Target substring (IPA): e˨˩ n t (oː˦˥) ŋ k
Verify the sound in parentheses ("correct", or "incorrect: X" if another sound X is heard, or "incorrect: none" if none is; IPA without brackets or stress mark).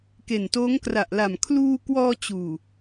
correct